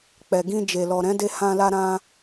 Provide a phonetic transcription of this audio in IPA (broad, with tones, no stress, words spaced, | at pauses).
k͡pɛ˨ɡĩ˧ d͡ʒe˨lɔ˨ ɾɛ̃˨˦de˧hã˧la˧ ɾã˧